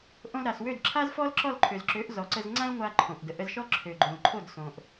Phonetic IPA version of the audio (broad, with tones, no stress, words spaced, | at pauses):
ʔõ˧lɾa˨swø˦˨d ǁʰa˦zfɔ˦lǁɔ˦˨lǃʰø˨z ǁø˨˦ʔ zɔ˨ǀə˧z ŋ͡ǀã˦lŋʷa˧ ǃʰõ˨ʔdə˨ ʔə˧zʃɔ˦ǁʰø˨ ɡ͡ǃõ˨lǃʰo˦˨d sõ˨ʔ